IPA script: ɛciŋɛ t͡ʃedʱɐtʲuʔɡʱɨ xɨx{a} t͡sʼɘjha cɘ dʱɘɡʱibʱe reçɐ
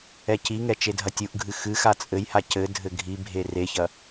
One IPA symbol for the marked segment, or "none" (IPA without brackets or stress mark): a